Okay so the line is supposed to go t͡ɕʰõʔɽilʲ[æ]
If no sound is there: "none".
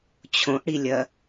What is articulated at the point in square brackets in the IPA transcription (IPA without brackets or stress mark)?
ɐ